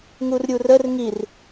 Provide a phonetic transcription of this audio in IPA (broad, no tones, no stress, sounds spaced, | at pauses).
ŋ u r ɾʲ u r ə r ŋ i r